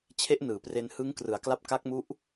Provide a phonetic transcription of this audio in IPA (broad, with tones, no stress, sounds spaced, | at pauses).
t͡ɕʰ e˦˥ ʔ n ɯː˩˦ p r e˧ n h ɯ˦˥ ŋ k r ɯ˩˦ a̯ k l a˦˥ p̚ k a˦˥ k̚ m u˦˥ ʔ